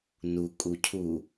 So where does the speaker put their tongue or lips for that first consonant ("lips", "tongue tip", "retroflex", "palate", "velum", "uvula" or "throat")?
tongue tip